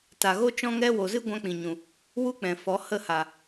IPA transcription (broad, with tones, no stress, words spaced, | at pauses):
ta˨ɣo˦ t͡ʃɔ̃˦ŋɛ˦ wo˨zɨ˦ ɡʷã˦k͡pĩ˨ɲũ˨ | wu˦k͡pɛ̃˨fɔ˨˦ hə˦˨ha˨